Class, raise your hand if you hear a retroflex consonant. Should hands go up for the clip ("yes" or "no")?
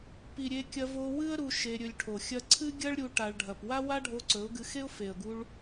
yes